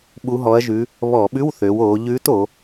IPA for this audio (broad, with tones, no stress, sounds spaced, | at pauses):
ɓ u˧˥ ɦ ɔ˧˥ ɐ̯ ʒ ʉ˧˥ | β ɔ˧˩˧ ɓ ʉ˧˥˧ w θ ø˩˧ w oː˩˧ ʎ ʉː˧˥ t o˩˧